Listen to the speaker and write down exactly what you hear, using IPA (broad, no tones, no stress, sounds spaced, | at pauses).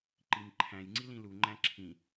ǃ i m ǃʰ æ̃ j ŋ͡ǀ i l ĩ l u ŋ͡ǃ æ̃ ǁʰ ĩ